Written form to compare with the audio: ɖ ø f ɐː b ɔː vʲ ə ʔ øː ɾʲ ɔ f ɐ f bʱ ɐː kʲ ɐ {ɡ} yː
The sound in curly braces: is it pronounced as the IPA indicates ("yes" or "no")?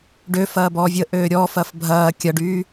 no